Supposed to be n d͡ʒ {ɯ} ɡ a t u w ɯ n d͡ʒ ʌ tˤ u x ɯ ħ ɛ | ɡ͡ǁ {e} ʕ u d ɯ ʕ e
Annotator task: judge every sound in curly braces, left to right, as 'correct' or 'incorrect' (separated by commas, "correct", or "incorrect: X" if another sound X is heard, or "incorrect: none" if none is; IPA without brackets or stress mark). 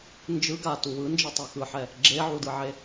correct, correct